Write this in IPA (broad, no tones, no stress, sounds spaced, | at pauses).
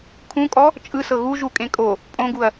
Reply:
kʰ ũ kʼ ɔ | t͡ʃʼ ɯ s ɤ ɣ u ʒ u kʼ ẽ kʼ o | pʼ õ ɡ u ɐ̯